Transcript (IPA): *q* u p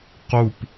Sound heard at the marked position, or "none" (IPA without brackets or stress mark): q